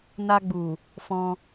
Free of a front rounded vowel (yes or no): yes